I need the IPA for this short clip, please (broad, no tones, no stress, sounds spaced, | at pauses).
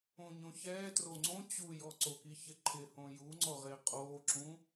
õ ɲ õ ç ɛː t r o ŋ͡ǀ õ t͡ɕ u j ɔ ǀ o k i ç ɪ ǃʰ ɪ h õ j u ŋ͡ǀ ɔ ʁ ɪː qʼ oː ǁ ũ